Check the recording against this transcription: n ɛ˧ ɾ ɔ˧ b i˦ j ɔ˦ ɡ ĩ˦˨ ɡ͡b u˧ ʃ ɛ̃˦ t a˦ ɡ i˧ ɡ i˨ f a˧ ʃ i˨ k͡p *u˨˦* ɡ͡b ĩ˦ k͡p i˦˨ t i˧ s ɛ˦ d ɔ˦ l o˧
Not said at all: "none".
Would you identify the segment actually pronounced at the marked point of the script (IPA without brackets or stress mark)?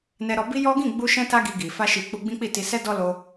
u˧